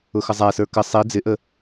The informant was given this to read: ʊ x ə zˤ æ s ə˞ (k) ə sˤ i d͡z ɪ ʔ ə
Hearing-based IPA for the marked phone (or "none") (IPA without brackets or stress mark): k